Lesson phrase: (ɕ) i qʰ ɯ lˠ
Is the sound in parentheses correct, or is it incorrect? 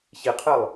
correct